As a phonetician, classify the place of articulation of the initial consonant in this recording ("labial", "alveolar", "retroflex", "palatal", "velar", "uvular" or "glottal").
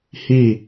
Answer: glottal